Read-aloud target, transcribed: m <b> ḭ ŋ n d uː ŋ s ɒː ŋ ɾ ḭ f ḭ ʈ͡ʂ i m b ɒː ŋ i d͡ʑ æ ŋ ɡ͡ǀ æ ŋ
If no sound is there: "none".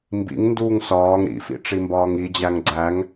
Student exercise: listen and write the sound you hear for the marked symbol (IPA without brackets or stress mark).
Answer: b